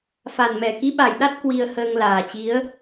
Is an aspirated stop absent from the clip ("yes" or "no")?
yes